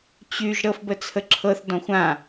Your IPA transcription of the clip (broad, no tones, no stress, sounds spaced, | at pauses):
t͡ɕ y ʒ ɾ ɤ f b ə t͡sʰ ə ǁʰ ɤ θ d ɔ̃ xʷ ã